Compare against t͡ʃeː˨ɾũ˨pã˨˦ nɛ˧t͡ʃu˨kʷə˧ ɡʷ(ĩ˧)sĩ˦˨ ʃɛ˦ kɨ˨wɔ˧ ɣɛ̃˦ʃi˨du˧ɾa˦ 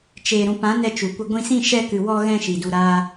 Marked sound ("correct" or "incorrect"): correct